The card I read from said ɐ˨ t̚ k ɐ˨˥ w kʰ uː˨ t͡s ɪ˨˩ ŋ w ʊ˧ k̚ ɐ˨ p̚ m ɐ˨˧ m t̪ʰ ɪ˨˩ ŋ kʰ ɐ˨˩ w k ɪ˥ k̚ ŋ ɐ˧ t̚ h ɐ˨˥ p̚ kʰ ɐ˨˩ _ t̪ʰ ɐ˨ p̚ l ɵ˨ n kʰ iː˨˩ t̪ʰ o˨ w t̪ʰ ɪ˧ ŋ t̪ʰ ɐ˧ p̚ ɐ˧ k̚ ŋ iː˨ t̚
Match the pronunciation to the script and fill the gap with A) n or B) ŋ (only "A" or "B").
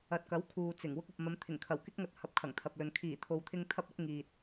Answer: B